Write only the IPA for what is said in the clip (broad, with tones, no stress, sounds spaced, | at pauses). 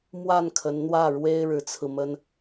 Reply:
m w a˥˩ n kʰ ə˧˥ n n̪ w ä˥˩ ɻ w e˥ ɪ̯ ɻ ɻ̩˧˥ t͡sʰ ɹ̩˧ m ə˥ n